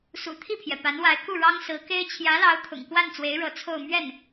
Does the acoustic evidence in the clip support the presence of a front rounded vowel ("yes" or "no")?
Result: no